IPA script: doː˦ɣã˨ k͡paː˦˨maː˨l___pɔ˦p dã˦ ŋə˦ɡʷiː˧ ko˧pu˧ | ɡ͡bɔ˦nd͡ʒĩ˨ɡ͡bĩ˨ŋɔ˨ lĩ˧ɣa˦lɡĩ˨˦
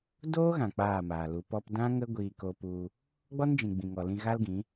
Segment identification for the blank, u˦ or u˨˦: u˨˦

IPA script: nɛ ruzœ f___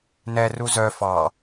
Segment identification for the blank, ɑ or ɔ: ɑ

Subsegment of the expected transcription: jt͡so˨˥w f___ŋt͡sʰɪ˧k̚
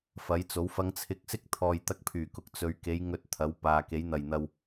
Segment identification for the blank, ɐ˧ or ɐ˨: ɐ˧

